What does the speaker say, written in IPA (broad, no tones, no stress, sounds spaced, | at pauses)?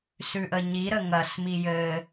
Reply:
s ʉ ʔ ə ɲ i ɾ ə ŋ ɐ s m i j ɘ